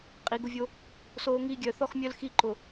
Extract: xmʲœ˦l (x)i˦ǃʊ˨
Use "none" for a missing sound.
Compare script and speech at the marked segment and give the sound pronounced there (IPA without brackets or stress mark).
x